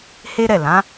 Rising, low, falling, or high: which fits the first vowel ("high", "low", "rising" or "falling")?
high